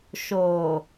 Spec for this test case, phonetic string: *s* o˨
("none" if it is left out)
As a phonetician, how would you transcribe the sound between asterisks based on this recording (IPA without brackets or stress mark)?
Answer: ʃ